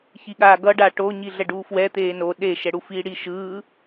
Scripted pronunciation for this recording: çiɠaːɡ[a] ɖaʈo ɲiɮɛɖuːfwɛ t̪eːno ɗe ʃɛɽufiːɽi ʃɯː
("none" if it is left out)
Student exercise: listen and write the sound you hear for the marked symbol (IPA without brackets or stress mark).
ʌ